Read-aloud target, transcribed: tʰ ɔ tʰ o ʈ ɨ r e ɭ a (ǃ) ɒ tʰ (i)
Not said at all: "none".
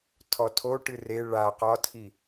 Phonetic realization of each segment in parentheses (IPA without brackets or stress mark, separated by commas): q, i